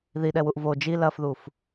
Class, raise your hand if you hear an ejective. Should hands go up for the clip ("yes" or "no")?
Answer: no